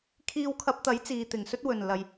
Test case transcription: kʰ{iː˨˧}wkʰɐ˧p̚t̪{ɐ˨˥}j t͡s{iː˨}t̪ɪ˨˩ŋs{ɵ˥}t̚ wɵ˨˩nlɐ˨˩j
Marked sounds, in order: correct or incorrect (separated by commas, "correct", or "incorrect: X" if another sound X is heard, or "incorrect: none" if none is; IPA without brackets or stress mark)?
incorrect: iː˧, correct, correct, correct